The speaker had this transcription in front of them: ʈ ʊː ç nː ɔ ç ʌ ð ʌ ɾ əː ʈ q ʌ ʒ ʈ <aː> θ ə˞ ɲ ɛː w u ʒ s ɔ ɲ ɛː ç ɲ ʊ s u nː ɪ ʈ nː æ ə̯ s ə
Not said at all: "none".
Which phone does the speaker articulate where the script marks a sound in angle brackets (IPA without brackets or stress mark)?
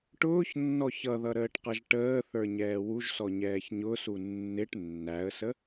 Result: əː